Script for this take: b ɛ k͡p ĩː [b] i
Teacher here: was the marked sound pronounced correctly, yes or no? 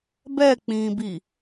yes